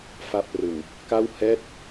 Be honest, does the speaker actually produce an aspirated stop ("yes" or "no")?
no